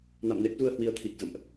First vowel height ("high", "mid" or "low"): low